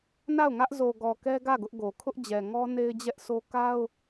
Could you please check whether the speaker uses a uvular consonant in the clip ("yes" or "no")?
no